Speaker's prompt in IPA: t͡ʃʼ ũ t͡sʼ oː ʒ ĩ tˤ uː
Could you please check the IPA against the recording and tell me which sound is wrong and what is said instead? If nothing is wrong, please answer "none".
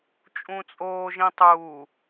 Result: none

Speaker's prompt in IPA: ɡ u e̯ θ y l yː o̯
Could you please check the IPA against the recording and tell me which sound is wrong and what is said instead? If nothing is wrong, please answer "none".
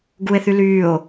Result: none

